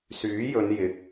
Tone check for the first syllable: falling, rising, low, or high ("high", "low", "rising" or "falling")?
rising